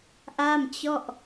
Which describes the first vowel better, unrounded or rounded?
unrounded